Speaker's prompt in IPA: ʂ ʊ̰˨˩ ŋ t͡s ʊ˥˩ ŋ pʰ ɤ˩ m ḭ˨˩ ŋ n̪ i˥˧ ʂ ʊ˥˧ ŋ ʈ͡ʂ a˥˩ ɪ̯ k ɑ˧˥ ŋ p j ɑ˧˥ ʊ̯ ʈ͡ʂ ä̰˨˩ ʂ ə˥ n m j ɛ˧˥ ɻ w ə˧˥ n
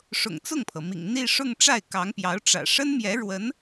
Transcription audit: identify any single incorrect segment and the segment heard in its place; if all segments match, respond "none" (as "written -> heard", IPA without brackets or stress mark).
none